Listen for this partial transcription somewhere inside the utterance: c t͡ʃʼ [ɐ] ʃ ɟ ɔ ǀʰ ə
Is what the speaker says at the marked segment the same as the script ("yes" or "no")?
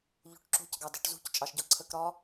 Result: no